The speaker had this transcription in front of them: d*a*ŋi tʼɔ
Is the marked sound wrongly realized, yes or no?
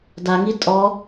no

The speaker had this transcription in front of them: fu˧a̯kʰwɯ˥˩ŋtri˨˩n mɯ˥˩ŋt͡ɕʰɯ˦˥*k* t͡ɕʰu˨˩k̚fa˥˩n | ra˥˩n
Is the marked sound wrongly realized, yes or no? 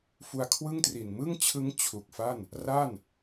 yes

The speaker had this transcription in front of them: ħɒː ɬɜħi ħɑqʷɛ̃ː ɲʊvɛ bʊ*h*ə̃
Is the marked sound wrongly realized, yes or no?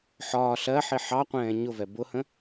no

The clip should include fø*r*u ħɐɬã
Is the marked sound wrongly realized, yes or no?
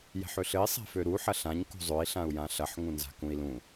yes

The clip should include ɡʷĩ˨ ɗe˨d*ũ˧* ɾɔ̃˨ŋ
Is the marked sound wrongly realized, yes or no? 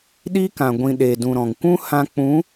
yes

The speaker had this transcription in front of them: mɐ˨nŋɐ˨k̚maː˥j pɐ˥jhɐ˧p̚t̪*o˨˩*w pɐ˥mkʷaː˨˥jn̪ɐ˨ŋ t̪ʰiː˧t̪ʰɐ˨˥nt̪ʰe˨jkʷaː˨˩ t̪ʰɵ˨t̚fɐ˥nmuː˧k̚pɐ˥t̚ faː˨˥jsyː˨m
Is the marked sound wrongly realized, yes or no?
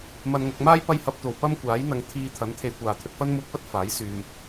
no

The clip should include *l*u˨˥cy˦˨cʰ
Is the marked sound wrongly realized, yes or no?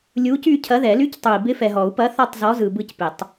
yes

